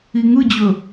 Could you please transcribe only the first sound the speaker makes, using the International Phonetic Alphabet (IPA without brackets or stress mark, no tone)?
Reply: i